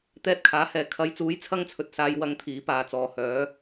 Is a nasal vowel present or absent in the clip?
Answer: absent